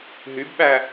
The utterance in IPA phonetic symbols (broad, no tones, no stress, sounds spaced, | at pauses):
ɦ y b ɓ æ